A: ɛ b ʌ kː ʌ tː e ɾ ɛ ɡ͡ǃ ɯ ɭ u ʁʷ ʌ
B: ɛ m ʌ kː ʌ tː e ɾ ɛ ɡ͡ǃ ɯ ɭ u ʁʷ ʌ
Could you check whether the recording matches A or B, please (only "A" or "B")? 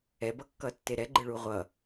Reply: A